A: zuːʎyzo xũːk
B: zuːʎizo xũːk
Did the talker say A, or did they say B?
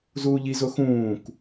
B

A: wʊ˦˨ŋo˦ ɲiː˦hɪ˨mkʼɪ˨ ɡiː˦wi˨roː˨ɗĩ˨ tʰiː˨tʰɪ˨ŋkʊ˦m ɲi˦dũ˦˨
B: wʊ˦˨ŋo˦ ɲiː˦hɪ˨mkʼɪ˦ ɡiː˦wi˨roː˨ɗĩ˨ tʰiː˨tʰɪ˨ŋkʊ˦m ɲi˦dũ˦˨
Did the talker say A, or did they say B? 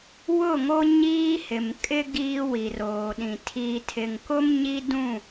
B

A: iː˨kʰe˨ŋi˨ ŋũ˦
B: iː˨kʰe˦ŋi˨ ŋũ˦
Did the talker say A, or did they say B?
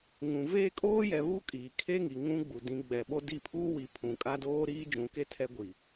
B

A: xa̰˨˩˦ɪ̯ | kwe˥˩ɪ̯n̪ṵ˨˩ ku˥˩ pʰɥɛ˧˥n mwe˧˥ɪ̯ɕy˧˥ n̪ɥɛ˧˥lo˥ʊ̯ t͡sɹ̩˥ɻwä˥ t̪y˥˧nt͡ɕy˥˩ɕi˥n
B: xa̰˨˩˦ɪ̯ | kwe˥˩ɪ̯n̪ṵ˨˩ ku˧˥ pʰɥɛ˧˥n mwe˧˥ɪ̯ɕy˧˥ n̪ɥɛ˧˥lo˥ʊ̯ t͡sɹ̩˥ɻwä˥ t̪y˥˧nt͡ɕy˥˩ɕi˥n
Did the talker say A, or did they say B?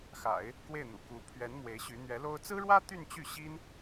B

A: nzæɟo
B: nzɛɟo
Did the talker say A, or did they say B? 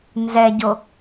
B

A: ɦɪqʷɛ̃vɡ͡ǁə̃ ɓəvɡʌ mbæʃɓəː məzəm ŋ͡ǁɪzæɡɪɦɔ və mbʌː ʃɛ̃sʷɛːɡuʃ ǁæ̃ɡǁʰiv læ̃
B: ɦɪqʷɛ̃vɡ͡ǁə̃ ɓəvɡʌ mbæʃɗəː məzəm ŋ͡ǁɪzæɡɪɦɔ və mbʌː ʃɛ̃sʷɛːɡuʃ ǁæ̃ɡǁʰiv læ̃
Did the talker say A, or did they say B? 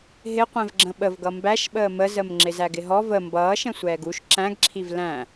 A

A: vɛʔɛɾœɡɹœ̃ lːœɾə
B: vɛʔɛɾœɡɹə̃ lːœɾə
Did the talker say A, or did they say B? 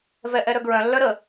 A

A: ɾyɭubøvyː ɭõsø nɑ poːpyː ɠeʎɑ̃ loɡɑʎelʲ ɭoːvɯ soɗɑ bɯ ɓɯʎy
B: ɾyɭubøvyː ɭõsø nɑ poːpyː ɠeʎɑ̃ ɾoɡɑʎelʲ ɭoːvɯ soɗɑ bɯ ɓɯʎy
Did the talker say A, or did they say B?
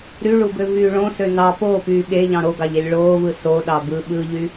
B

